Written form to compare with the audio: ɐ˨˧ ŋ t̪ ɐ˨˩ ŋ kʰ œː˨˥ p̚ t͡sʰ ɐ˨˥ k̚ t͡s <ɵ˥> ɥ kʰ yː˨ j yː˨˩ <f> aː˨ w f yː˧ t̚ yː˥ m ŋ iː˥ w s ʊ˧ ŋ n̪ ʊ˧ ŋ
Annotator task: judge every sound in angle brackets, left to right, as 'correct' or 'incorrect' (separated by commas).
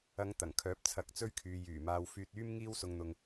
incorrect, incorrect